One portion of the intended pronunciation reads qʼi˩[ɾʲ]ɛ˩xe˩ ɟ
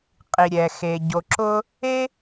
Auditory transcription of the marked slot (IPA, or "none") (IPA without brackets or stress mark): ɾʲ